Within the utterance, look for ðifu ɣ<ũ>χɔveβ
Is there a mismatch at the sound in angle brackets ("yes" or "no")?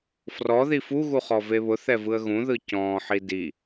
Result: yes